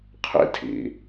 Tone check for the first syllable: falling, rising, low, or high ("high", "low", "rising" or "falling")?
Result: high